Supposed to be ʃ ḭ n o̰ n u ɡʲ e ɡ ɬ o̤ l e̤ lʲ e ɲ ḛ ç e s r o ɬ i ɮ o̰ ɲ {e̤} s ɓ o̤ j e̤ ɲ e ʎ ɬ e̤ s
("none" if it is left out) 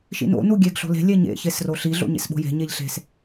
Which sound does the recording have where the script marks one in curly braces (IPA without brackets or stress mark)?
ḛ